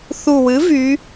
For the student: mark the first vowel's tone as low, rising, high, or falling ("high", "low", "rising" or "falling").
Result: low